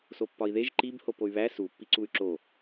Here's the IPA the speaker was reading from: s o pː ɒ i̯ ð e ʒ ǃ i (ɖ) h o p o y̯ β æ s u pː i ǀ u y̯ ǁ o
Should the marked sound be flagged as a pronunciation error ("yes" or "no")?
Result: yes